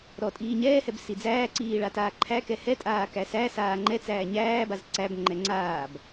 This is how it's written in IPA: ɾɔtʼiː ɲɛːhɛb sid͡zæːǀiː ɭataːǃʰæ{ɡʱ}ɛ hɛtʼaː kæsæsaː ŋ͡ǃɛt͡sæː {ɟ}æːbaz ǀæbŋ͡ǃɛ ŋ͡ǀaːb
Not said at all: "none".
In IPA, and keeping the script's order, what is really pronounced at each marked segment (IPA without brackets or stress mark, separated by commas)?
k, ɲ